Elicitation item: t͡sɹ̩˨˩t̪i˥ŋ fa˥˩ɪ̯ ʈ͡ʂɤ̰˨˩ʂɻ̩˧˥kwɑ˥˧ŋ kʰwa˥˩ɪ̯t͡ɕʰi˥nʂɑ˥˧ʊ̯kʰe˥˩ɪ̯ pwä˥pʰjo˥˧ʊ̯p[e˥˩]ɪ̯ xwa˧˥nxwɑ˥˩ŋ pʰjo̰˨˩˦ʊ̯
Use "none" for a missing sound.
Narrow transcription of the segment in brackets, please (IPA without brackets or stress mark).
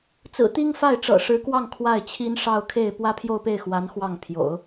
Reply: e˥˩